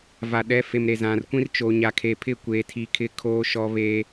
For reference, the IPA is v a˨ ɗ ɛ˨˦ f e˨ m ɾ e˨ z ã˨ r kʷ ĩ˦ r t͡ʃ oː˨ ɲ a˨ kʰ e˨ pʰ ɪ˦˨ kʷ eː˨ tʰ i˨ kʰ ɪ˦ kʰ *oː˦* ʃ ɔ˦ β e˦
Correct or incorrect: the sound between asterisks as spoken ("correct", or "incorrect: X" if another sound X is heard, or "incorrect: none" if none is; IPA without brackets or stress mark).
correct